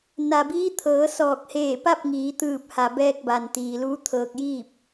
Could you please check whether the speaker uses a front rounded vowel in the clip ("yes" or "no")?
no